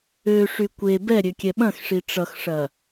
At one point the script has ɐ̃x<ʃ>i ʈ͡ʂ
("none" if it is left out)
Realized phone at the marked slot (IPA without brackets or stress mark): ʂ